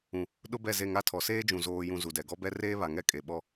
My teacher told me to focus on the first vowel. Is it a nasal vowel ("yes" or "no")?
yes